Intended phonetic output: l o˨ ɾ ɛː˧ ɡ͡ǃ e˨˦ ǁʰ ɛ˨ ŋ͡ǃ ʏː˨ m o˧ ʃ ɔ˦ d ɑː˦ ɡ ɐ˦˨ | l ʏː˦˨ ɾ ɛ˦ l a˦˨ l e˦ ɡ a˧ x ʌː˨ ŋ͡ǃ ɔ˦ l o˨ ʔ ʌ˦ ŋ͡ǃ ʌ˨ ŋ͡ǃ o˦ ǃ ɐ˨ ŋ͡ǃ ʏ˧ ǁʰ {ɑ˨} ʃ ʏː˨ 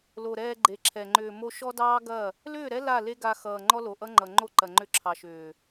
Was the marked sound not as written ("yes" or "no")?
no